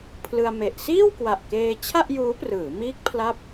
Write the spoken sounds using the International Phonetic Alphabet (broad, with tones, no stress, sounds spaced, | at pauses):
pʰ l ɯ˧ a̯ m e˨˩ ʔ s iː˥˩ w k w a˨˩ ʔ k eː˧ t͡ɕʰ a˥˩ ʔ j uː˦˥ p r ɯː˩˦ m iː˦˥ k̚ pʰ l a˥˩ p̚